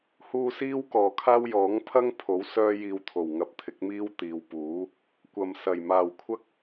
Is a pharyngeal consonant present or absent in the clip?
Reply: absent